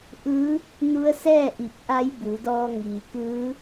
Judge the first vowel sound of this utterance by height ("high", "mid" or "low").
high